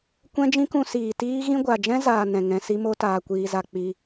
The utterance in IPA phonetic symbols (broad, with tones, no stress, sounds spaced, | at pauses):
kʷ ɛ̃˦ d͡ʒ ĩ˦ k ũ˧ s iː˨ t iː˦ ɣ ĩ˦ ɡʷ a˨ d͡ʒ ɛ̃˦ z aː˧ n ɛ̃˨ ŋ ɛ̃˧ s i˦ m o˦ t aː˧ kʷ iː˧ z a˧ k͡p i˧